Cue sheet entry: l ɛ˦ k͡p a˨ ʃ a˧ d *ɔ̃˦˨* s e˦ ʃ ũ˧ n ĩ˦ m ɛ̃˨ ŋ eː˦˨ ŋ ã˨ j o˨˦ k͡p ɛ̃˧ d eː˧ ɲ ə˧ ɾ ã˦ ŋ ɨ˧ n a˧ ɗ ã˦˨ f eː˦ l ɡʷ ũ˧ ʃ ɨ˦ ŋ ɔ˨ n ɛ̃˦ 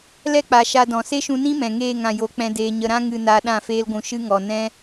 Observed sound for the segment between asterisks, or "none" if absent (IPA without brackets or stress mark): ɔ̃˨